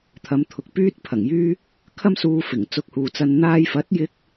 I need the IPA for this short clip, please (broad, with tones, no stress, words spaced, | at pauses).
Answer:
t̪ʰɐ˨˧mt̪ʰʊ˨k̚ pyː˥t̚pʰɐ˨˩ŋjyː˥ | kʰɐ˥msuː˧fɪ˨˩ŋ t͡sʊ˧k̚huː˨t͡sɐ˧n n̪aː˧jfɐ˨˥t̚jɪ˧k̚